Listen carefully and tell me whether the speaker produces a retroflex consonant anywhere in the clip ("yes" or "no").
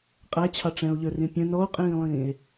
yes